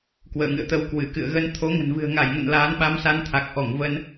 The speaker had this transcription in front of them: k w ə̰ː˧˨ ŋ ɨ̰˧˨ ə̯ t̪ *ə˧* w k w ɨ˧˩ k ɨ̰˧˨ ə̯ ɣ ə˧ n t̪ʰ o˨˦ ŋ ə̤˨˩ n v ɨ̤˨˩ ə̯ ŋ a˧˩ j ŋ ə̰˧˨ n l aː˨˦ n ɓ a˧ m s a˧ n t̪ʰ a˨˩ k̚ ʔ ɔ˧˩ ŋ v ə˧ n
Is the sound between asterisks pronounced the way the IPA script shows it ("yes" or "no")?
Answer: yes